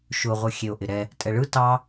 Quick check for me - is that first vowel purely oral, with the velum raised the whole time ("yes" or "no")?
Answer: yes